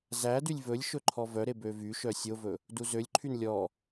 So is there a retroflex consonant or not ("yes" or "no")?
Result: no